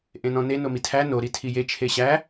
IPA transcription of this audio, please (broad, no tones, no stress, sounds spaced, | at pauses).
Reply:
ʔ ẽ n ɔ̃ n e n o m i tʰ æ n o ɾ i tʰ i j e t͡ʃʰ e ɕ æ